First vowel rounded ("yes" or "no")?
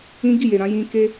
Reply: no